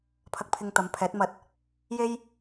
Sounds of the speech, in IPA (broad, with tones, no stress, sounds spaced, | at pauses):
pʰ ɐ˧ k̚ pʰ ɪ˧ ŋ t̪ ɐ˨˥ m pʰ ɛː˨˥ t̚ m ɐ˧ t̚ | j e˥ j